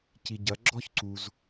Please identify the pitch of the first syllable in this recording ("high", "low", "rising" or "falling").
low